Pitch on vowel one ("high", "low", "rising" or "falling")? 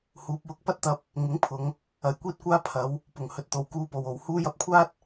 rising